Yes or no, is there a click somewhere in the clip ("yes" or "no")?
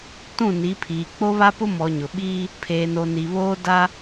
no